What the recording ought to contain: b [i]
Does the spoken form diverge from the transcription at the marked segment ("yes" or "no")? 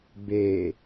yes